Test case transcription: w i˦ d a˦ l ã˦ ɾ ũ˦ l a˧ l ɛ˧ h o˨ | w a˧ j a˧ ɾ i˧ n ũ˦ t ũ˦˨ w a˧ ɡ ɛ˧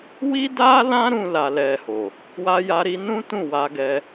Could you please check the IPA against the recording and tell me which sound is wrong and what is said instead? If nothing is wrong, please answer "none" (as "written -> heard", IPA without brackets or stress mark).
none